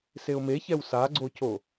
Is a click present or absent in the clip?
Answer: present